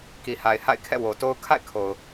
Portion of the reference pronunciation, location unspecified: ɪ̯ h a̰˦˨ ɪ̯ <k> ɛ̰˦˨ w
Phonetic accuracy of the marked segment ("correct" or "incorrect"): incorrect